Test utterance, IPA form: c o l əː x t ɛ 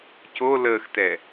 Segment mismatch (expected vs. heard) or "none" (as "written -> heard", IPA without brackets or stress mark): none